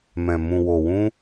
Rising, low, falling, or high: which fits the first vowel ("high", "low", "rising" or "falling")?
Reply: low